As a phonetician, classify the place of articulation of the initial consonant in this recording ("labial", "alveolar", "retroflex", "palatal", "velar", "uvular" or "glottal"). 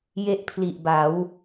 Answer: palatal